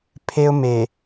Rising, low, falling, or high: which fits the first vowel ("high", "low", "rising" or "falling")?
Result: high